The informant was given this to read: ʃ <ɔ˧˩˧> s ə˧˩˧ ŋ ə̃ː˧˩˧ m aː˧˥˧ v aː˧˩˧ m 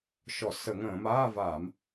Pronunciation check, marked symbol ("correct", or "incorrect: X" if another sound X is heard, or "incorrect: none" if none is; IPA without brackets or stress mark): correct